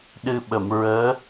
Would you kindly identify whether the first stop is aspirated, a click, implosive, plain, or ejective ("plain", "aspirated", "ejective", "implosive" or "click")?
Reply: implosive